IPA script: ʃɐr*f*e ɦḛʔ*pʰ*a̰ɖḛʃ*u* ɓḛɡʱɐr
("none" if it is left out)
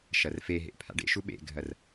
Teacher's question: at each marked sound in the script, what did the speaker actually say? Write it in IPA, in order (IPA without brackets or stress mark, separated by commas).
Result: f, pʰ, u